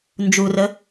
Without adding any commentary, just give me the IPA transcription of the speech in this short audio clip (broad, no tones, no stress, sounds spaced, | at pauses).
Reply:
n d͡ʒ u r ə